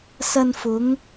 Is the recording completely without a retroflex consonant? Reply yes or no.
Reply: yes